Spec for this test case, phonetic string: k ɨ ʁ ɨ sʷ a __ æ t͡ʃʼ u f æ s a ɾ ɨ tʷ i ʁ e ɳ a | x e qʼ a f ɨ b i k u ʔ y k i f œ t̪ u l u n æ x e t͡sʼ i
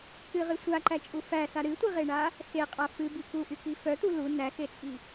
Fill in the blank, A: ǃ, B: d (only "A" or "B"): A